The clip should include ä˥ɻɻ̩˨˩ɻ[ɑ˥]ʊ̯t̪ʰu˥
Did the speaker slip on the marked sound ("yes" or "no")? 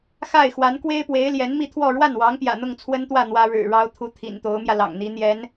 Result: no